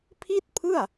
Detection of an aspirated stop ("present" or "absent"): present